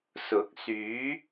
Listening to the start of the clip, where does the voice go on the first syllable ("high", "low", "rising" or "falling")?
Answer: rising